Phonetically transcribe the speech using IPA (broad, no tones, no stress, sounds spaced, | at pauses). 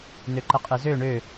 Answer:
n ø ǃ ə qʼ ɯ z ø ɳ ø